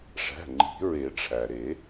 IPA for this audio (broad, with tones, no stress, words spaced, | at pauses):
ʂæ̤˩˧˩ ŋ͡ǃi̤˨˩˦ɹe˨˩˦ʈ͡ʂʰæ˩ɾe˨˩˦